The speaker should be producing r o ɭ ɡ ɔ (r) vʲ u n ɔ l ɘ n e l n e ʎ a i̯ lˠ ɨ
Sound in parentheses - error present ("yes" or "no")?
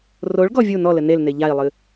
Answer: yes